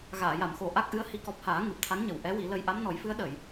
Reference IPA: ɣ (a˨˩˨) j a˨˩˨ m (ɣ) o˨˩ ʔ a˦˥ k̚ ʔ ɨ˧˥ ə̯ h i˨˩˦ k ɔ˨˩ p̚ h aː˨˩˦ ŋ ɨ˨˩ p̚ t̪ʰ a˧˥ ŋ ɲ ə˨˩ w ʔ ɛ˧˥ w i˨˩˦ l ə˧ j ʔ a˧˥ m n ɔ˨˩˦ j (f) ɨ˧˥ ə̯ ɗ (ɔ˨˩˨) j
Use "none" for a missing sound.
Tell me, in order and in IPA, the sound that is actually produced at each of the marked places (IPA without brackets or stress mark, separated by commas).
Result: aː˨˩˨, x, f, ə˨˩˨